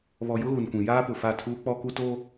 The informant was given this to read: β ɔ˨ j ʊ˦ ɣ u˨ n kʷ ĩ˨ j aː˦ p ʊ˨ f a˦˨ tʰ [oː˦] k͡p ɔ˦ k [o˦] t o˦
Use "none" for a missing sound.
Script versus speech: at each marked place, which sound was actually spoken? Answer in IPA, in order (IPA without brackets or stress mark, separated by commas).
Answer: uː˦, u˦